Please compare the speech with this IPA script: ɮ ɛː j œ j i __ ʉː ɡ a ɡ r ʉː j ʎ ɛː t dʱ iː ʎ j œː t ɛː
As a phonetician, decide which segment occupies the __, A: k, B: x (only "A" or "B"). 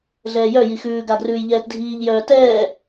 B